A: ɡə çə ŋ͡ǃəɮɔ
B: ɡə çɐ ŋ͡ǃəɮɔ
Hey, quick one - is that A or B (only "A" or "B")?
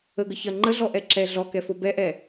B